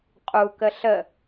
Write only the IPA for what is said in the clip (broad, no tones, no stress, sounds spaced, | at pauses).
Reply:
qʼ u k ə ɬ ə